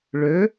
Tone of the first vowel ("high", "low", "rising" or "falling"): rising